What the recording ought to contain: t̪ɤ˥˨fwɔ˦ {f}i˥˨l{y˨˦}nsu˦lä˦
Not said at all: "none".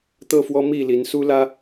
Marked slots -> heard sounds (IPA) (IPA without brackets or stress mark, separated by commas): m, i˨˦